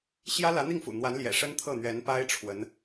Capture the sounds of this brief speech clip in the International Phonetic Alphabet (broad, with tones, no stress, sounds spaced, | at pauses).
ɕ j ä˥ l ä˧˥ n̪ i˥˩ ŋ f ṵ˨˩ n̪ w a˧˥ n l j ɛ̰˨˩ ʂ ə˥ n t̪ʰ ɤ˥˩ n̪ ɥ ɛ˧˥ n p a˥ ɪ̯ ʈ͡ʂʰ w ə˧˥ n